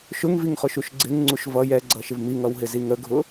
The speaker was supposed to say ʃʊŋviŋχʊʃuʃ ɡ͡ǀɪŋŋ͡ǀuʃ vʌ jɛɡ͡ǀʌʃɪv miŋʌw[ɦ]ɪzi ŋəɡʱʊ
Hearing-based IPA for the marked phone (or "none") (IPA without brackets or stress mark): ɦ